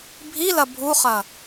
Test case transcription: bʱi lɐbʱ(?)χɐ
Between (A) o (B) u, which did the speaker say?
B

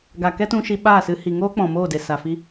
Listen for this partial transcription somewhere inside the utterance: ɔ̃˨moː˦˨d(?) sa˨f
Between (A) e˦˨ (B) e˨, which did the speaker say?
B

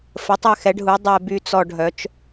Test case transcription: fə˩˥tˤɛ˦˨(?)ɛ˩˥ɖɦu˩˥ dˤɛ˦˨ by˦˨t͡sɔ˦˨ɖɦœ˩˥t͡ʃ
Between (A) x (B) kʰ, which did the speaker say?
A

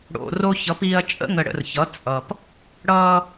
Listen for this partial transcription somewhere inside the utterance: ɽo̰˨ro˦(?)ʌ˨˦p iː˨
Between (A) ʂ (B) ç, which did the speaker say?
B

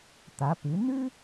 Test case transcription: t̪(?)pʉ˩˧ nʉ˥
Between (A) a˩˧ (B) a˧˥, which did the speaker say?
A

